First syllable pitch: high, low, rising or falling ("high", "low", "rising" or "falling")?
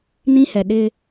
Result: high